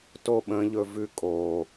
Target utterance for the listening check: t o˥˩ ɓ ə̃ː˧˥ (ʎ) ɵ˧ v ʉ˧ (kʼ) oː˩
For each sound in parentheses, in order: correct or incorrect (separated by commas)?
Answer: correct, correct